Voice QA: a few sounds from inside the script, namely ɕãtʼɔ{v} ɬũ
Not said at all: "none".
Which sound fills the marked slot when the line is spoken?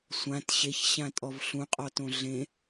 v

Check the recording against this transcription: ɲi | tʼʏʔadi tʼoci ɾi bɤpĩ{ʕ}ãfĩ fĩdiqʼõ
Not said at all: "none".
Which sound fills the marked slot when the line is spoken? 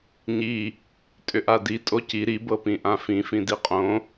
ʔ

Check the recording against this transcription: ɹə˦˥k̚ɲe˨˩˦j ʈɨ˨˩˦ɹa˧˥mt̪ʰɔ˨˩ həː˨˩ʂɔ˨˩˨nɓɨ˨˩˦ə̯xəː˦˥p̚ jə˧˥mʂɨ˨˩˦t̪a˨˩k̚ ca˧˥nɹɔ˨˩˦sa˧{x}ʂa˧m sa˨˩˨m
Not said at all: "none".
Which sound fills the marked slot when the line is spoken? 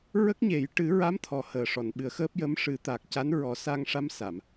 ŋ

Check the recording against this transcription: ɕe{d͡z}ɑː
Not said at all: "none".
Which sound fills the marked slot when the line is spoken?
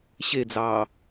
d͡z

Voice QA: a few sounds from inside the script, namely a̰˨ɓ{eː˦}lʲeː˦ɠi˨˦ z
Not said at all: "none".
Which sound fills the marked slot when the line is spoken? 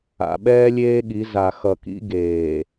ɛː˦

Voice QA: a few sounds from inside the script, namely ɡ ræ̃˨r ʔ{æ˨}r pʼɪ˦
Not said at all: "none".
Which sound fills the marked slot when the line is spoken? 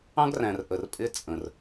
ə˨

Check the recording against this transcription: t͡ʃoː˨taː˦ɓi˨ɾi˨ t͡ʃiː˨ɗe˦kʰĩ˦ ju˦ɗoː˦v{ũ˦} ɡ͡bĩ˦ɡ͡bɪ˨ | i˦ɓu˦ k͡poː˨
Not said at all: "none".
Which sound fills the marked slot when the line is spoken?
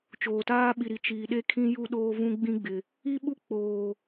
ũ˦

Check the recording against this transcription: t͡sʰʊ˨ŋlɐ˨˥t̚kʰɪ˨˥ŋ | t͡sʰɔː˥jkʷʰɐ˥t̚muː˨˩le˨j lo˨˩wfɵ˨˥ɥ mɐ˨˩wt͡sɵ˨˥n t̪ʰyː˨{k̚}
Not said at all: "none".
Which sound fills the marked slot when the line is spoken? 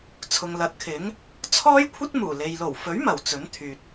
t̚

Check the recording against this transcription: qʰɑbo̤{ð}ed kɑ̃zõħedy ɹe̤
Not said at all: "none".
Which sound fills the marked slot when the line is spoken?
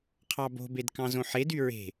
b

